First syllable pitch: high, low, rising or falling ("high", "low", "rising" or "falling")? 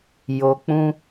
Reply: low